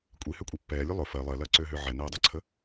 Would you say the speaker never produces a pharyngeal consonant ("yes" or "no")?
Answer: no